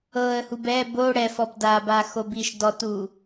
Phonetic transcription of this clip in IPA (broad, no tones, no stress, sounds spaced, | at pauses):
ɤ ə̯ h u b ɛ b o ɽ ɛ f ɔ b d a b a x o b i ʃ d ɔ t u